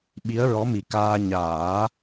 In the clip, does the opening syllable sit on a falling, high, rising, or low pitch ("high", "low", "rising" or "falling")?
rising